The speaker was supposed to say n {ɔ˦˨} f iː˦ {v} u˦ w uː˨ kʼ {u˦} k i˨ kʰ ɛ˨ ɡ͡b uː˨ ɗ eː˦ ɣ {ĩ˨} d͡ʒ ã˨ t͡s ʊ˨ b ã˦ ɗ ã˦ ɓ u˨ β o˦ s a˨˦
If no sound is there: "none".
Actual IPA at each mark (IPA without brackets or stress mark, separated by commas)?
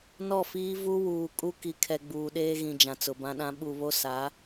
ɔ˦˨, v, u˦, ĩ˨